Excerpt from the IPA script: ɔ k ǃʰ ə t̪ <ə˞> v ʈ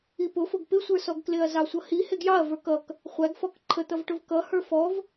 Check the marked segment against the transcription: incorrect: ʌ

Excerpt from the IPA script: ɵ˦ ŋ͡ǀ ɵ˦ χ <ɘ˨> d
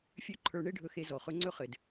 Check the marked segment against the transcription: correct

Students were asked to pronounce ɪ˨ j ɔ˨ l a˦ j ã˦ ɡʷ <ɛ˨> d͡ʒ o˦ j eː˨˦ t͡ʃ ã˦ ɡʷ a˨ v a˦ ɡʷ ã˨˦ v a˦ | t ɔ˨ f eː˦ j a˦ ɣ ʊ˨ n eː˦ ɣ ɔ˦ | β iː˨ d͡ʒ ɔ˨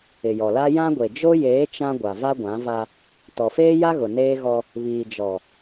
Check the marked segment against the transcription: incorrect: e˨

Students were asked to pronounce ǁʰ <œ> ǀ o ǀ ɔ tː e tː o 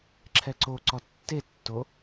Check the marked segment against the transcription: incorrect: ɛ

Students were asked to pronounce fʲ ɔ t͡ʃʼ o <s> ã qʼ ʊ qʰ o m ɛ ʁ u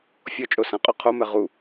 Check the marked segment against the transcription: correct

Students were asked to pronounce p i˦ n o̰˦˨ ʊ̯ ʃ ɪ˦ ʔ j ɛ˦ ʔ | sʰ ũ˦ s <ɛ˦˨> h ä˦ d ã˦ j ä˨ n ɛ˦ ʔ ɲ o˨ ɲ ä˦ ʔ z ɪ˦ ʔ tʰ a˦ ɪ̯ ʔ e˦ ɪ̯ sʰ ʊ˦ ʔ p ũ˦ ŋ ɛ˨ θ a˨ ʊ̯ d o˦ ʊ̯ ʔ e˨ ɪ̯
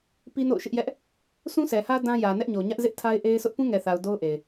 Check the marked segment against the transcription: incorrect: ɛ˨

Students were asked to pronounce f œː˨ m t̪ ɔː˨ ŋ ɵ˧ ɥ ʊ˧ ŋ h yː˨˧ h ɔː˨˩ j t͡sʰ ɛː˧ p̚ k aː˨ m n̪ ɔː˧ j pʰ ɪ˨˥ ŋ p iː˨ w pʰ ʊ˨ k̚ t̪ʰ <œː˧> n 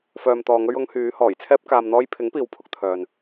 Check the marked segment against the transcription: incorrect: œː˨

